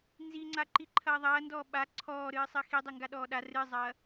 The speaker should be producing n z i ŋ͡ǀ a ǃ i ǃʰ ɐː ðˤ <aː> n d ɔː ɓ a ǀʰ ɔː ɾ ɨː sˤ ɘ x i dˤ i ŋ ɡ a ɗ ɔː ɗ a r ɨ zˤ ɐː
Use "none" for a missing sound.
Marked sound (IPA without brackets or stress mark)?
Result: ɐː